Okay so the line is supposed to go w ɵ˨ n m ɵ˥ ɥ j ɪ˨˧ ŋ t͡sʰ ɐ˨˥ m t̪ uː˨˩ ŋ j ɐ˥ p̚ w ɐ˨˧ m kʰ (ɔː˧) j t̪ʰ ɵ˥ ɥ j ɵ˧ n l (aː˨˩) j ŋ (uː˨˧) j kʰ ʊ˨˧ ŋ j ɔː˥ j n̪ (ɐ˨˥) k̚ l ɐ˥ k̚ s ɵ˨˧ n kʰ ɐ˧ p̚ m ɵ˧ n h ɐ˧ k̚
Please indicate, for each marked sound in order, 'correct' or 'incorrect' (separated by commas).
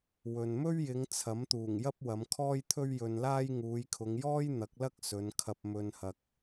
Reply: incorrect, incorrect, correct, correct